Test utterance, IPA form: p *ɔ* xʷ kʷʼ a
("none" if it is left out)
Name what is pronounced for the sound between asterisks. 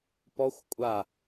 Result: ɔ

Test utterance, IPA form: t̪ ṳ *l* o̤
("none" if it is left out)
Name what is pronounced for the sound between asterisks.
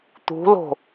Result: l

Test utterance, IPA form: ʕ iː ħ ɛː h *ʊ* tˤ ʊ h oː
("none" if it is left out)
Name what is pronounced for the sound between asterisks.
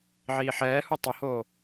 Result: u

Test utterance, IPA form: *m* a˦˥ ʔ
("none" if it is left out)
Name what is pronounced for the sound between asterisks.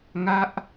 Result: ŋ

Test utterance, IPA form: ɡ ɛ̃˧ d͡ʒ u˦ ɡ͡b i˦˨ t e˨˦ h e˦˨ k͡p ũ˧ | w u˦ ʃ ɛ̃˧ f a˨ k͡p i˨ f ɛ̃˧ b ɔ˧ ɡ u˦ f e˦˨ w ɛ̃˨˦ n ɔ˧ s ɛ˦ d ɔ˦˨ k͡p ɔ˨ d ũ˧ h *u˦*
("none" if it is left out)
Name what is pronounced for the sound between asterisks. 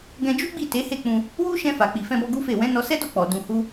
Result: u˦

